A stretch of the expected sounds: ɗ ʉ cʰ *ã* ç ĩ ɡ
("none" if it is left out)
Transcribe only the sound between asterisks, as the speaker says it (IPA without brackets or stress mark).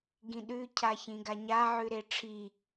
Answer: a